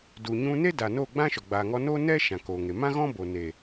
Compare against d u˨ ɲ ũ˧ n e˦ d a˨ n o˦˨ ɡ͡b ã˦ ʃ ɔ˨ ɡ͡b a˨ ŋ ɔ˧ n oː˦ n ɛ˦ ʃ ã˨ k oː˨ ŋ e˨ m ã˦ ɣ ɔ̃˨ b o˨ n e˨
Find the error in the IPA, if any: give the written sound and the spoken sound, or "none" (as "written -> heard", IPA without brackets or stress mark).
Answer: ɔ̃˨ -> ɔ̃˦